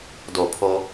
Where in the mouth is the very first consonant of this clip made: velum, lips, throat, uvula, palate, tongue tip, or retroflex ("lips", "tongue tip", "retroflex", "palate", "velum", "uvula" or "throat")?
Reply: tongue tip